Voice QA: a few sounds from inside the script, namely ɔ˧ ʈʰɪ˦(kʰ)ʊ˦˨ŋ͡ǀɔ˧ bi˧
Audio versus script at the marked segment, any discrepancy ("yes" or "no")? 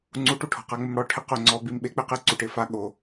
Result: yes